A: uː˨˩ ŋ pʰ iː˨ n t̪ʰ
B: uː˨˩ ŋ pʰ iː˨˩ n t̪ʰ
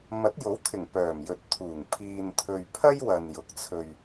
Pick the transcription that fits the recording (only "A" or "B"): A